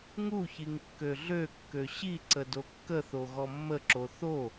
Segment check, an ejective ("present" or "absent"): absent